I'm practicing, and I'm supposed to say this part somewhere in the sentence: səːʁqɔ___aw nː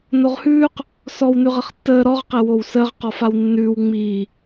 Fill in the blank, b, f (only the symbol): f